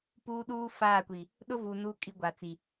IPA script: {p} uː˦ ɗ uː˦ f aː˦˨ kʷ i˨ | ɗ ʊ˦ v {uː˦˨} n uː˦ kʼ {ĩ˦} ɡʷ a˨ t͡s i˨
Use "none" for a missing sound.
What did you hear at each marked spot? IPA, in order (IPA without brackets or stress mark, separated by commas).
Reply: p, uː˨, i˦